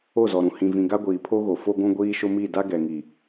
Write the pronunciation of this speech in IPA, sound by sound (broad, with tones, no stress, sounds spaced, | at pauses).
o˦˨ z ɔ˨ ɾ ũ˨ h ĩ˨ v ĩ˨ ɡ a˦ ɡʷ iː˨ pʰ o˦ ɣ o˨ f o˦ ɡʷ ũ˦ ɡʷ iː˦ ʃ ʊ˦ m i˦˨ d a˦ ɡ ɛ˨ ŋ i˨